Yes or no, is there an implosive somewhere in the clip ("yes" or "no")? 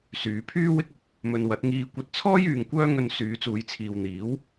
no